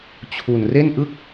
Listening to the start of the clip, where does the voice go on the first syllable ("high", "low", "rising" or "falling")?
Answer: low